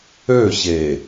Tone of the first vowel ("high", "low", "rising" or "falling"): falling